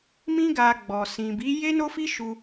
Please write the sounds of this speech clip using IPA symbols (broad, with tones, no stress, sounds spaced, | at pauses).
m ĩ˦ ɡ a˧ ɡ͡b ɔ˨ s ĩ˨ b i˨˦ j e˦ n o˦ f i˦ ʃ u˧